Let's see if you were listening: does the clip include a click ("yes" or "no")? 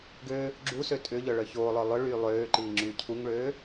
yes